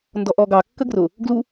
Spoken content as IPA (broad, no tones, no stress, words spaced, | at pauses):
ndɔʔɔɡɑ kːəɡrʊ | ɡlu